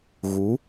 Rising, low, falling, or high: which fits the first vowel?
rising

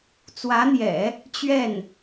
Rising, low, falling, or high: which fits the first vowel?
rising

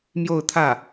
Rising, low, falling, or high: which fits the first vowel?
falling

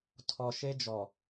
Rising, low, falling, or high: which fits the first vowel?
low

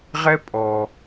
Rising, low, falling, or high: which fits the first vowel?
high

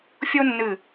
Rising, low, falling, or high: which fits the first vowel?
high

